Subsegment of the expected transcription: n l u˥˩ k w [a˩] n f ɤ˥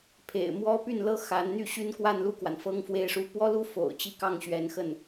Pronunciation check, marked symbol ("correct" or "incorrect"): correct